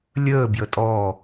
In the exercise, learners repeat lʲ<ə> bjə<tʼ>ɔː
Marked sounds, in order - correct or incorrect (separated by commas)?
incorrect, correct